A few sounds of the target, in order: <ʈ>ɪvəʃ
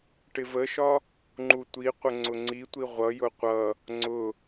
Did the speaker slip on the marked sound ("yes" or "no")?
no